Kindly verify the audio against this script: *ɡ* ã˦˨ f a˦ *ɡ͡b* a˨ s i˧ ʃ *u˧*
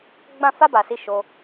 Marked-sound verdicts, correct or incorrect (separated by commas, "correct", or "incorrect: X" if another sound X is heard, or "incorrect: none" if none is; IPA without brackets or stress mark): incorrect: ɡ͡b, incorrect: b, incorrect: o˧